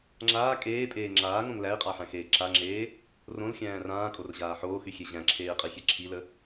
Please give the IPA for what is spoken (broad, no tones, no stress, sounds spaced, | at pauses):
ŋ͡ǁ aː kʼ eː pʼ eː ŋ͡ǁ aː ŋ õ ŋ l æ i̯ qʼ a ħ æ̃ x eː ǁ a ŋ͡ǁ eː | r õ l xʲ æ̃ː r ãː kʼ o r ʑ aː ħ oː x y xʲ e ʑ æ̃ ǁʰ eː i̯ qʼ i xʲ e ǁʰ i l ə